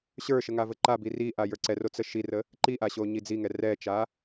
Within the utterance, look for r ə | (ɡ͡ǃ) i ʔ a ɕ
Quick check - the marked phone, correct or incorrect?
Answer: incorrect